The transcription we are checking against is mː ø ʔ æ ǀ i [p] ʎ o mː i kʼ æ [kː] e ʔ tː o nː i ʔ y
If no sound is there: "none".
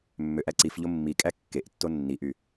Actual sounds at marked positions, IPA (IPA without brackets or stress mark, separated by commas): f, kː